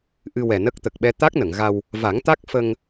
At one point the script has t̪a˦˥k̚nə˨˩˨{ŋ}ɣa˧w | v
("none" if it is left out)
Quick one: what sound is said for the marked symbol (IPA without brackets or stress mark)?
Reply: ŋ